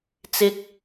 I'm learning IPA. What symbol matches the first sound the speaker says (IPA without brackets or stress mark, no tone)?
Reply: t͡s